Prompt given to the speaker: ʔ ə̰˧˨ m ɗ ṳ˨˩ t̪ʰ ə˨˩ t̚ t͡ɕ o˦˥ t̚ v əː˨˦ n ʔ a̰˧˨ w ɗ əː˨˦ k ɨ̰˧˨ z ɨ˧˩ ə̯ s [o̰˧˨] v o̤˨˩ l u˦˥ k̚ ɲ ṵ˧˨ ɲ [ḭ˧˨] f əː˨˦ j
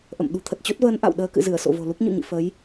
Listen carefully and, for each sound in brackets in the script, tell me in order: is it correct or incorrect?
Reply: correct, correct

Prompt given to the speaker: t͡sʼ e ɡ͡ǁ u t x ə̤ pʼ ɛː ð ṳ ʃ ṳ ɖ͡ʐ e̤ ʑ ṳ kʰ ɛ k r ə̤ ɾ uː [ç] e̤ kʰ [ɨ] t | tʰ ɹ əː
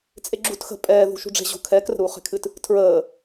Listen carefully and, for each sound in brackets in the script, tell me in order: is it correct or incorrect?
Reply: incorrect, correct

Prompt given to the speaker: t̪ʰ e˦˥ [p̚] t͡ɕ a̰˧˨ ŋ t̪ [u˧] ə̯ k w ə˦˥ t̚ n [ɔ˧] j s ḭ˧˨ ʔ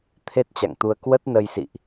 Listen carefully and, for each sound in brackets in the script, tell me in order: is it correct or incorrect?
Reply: incorrect, correct, incorrect

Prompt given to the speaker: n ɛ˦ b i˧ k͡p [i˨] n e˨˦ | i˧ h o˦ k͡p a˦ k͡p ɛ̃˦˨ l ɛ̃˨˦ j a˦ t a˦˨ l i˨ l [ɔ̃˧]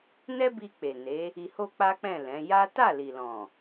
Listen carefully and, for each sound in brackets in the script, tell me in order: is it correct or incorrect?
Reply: incorrect, incorrect

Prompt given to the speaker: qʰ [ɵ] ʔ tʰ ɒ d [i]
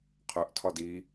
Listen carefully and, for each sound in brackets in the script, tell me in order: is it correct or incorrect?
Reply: correct, correct

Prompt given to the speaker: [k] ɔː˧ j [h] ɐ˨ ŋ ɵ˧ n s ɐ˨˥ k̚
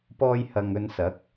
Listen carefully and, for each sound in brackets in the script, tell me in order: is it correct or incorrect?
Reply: incorrect, correct

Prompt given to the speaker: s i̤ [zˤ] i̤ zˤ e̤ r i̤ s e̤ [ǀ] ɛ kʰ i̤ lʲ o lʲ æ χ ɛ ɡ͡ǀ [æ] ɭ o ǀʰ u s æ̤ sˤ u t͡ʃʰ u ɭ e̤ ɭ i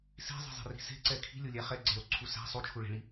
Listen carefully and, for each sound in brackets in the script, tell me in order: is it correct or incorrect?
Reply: correct, correct, incorrect

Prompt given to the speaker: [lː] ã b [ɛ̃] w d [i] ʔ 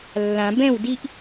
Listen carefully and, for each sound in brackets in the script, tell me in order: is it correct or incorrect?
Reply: correct, correct, correct

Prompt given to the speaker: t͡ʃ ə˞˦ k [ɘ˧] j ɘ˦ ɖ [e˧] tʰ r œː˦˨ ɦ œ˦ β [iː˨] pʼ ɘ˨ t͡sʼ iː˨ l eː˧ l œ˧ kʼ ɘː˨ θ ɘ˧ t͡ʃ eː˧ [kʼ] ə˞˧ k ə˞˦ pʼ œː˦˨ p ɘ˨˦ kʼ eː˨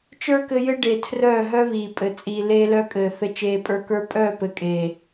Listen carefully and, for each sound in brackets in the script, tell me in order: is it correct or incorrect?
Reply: correct, incorrect, correct, incorrect

